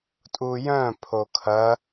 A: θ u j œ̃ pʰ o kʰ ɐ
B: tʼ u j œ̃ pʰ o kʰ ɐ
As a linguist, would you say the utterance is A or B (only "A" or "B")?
B